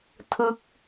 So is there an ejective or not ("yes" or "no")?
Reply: no